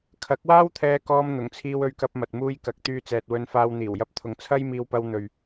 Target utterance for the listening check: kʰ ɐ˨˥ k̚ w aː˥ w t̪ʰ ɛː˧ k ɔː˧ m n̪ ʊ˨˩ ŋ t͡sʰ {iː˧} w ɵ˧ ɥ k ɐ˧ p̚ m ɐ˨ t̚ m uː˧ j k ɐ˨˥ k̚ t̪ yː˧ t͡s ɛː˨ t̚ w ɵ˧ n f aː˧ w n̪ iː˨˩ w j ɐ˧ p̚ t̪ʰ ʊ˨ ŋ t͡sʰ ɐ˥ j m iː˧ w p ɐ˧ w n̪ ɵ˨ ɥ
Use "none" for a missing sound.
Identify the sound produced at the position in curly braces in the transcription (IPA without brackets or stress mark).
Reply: iː˧